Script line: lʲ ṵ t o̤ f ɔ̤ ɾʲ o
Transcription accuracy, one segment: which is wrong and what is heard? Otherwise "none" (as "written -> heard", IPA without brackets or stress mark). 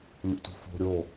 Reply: ɔ̤ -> o̤